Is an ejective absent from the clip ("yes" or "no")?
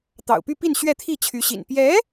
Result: yes